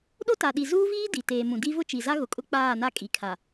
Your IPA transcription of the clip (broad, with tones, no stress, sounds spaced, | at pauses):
ɗ o˦ t a˨ ɗ i˨ z uː˦ v iː˦ d i˨ t eː˨ m ũ˨ d i˦ v ʊ˦ t͡ʃ i˨ z a˦ ɣ ʊ˨ kʼ ʊ˦ k͡p aː˦˨ n a˦ kʼ i˨ kʰ a˨